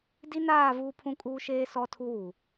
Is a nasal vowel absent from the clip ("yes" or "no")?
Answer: no